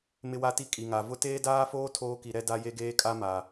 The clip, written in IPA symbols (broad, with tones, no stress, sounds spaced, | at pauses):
m ɪ˦ w a˦ t i˦ kʼ i˨ ŋ a˨ v ʊ˦ t eː˦ d aː˦ f oː˦ tʰ oː˦ k i˨ ɾ ɛ˦ d a˦ j e˦ ɡ eː˦ kʼ a˦ m a˨